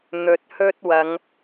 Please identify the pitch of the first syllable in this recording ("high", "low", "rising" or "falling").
low